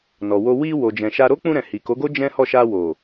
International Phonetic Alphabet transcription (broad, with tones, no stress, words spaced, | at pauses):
nɔ˨wo˧ wi˧ wo˨d͡ʒɛ̃˨ʃa˧ ɾo˦k͡pũ˧ɾɛ̃˨ hi˨ko˨˦ɡo˦ d͡ʒɛ̃˦hɔ˦˨ ʃa˧wo˨